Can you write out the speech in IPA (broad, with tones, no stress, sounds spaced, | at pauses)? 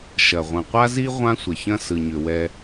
ʃ ɐ˨ ʁʷ ɐ̃˨ qʷ a˦ z i˦ ʁʷ ã˦ sʷ ə˨ ç ɐ̃˦ s ɯ˨ ɲ ʏ˨ w ɛ˦